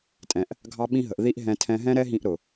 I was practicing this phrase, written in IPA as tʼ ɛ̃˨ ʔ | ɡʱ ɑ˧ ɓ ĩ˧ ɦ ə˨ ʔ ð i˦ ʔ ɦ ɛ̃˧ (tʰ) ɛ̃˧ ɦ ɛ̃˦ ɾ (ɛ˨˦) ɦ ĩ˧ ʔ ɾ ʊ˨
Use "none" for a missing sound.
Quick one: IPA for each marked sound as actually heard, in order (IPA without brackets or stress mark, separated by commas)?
tʰ, ɛ˦